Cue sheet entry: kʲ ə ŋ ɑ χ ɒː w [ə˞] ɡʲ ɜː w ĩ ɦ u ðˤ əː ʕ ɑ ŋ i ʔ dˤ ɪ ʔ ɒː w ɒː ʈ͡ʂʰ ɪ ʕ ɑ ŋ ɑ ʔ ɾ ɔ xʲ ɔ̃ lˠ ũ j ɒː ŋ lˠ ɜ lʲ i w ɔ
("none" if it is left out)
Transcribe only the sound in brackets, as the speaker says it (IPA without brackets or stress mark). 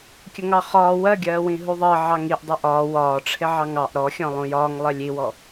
ɜ